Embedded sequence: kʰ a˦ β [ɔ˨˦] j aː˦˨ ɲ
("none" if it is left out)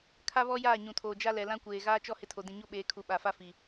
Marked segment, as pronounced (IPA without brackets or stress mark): ɔ˦